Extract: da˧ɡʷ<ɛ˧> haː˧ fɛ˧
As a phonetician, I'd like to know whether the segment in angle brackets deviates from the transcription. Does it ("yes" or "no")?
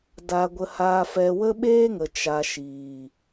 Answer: yes